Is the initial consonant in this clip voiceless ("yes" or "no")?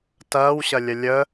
yes